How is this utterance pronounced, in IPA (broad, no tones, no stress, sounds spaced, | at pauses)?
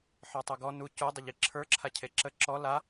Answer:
ħ ə˞ tˤ u ɡ ɔ n u c u dˤ ʊ ʎ i ǁʰ ə˞ ǁʰ a cʰ e ǁ ə ǁ ɔ l a